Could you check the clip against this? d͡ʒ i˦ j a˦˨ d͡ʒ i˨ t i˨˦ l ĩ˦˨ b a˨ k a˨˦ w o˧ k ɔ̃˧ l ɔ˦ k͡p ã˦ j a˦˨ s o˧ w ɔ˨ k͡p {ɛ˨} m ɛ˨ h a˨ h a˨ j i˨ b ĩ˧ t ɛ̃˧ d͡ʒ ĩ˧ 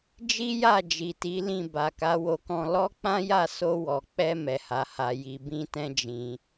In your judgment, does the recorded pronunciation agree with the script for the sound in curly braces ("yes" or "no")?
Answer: no